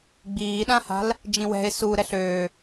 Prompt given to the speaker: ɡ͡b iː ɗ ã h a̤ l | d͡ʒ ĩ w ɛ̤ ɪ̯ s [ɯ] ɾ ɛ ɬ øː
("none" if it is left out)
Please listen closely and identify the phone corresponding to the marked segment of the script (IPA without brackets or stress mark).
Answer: u